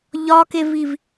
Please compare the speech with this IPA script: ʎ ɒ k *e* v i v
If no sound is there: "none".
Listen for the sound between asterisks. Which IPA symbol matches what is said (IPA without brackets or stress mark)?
e